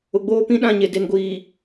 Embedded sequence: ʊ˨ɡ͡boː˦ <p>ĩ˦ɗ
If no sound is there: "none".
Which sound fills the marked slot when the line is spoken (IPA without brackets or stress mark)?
p